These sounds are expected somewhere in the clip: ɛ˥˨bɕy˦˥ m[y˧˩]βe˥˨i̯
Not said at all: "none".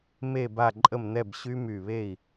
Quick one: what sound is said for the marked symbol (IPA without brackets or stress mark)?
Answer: y˧˩